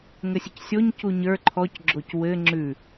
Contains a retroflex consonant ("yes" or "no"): no